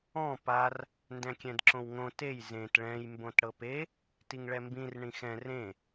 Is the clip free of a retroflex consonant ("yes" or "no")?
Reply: no